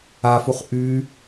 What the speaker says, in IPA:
afuχ ʔy

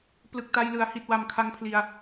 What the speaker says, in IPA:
plɯ˨˩k̚ta˧jlɯ˩˦a̯ hi˨˩t̚wa˨˩mkʰa˧ŋ pʰli˧a̯

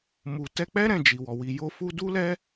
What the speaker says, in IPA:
mu˨tɛ˧k͡pɛ˦ ɾɛ̃˦˨d͡ʒi˨wɔ˨ wi˨jo˧fu˧ du˦lɛ˦

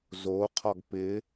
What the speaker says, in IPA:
zoqʰɒɡ pɪ

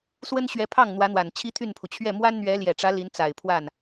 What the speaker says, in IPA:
swə˥nɕɥɛ˧˥pʰɑ˥˩ŋ n̪wä˧˥n̪wa˨˩n t͡ɕʰi˥t̪ʰy˥˩npʰu˩ t͡ɕʰɥɛ˥˩ mwa˥nn̪ɥɛ˧˥ ljɛ˨˩ʈ͡ʂä˧˥ li˧˥n t͡sa˨˩ɪ̯pʰwa˥˩n

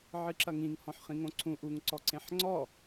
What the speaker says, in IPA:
ʕɨǁɐŋĩŋ hɔ̃ħχĩŋõǀʰũ ʔuŋ ǀɔǀẽħŋ͡ǀɔ

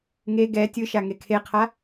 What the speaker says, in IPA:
ŋe ɡɛ tʲɯʃa ŋekʰeqʰa

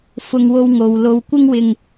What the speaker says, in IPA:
fʊ˧ŋwo˧w ŋo˨wlo˧wkʷɪ˥ŋwɪ˧ŋ

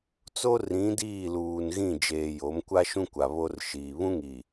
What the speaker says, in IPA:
t͡so˦ rĩ˨˦ diː˦˨luː˨nɣĩ˦˨ d͡ʒeː˨ jo˨˦mkʷa˦ʃũ˦kʷa˨ βo˦r ʃiː˨ βũ˦ŋi˨

